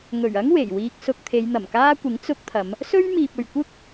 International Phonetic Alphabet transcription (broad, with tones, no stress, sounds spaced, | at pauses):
ŋ ɵ˨˩ ɥ ɐ˥ ŋ w e˨˩ j w iː˧ k̚ s ʊ˧ k̚ t̪ʰ e˨˧ j n̪ ɐ˨˩ m k aː˥ kʷ ɪ˨˥ ŋ t͡s ʊ˧ k̚ t̪ʰ ɐ˨˧ m | s ɵ˥ ɥ m iː˨ p̚ ɵ˨ ɥ kʷ ɪ˥ k̚